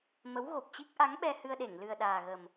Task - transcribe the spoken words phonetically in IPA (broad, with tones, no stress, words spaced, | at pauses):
mə˨˦wɣo˨˩p̚t͡ɕi˦˥k̚ ʔa˨˦ŋɓɛ˧hɨ˧ə̯ɗe˧˩ŋ lɨ˨˩ə̯ɗaː˨˩ɣə˨˩m